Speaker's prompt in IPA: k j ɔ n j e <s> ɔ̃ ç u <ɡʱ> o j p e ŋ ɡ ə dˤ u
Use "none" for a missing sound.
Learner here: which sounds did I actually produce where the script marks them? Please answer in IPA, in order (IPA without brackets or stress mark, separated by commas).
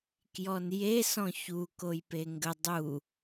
s, k